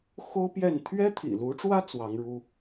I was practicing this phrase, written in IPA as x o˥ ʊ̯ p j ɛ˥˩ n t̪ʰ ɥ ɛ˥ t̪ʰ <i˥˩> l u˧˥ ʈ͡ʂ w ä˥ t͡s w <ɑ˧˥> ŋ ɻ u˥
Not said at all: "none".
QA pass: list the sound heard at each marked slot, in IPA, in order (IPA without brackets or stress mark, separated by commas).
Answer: ḭ˨˩, ɑ˧˥